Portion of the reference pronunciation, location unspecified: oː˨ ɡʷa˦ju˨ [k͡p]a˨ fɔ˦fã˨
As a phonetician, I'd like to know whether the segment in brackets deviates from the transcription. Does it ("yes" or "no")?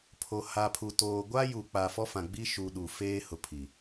no